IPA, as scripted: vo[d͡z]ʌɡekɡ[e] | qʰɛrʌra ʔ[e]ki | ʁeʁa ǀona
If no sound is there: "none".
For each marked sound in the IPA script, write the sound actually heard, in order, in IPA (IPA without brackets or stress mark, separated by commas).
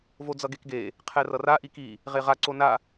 d͡z, e, i